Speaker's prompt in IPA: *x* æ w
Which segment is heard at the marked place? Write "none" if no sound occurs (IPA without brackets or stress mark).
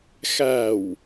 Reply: x